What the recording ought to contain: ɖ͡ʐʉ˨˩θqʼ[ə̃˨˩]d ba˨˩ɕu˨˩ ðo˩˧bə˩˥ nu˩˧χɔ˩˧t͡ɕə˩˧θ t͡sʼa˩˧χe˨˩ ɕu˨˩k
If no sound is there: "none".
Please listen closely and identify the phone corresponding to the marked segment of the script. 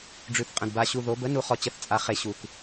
ə̃˨˩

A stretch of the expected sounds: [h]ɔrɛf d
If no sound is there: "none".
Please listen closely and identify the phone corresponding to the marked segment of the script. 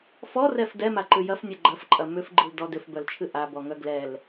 f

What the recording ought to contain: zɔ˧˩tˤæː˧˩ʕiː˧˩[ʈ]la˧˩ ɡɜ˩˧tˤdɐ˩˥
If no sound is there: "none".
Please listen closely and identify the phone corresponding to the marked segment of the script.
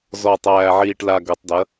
ʈ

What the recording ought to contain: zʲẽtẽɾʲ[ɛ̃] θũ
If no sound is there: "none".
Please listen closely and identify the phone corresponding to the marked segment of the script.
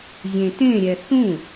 ɛ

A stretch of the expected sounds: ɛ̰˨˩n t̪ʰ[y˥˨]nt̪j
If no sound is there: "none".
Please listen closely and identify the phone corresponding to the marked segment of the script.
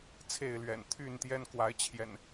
y˥˨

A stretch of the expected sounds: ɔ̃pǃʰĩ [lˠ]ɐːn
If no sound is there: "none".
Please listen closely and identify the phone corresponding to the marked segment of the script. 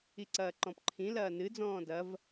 l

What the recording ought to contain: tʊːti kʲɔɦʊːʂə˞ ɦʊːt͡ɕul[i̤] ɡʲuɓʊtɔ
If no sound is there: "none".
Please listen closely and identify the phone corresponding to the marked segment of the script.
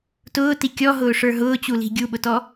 i̤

